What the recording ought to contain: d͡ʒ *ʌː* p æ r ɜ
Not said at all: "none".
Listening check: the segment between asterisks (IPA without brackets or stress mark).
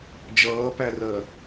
ʌː